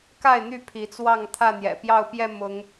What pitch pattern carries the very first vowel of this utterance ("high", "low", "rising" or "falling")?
falling